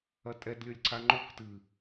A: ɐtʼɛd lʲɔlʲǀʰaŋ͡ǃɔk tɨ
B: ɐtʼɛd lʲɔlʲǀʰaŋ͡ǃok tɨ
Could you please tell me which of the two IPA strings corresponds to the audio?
B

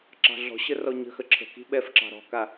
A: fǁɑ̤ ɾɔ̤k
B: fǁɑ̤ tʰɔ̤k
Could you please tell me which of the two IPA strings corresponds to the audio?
A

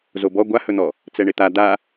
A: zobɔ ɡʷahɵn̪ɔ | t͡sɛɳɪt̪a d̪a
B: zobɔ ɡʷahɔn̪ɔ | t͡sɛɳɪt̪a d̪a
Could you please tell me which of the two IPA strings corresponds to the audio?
A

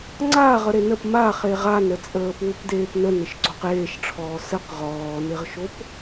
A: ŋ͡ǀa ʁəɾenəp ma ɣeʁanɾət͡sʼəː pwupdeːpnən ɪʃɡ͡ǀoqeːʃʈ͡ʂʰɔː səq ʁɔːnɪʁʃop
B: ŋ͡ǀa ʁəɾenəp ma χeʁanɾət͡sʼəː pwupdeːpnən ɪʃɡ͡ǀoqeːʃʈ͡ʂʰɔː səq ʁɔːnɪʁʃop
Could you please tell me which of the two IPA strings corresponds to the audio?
B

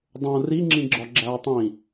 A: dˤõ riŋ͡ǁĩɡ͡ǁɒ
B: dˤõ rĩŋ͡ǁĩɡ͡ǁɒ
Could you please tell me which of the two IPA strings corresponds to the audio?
A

